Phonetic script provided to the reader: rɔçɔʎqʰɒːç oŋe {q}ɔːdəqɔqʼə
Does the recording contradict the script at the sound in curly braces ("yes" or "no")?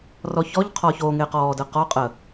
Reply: no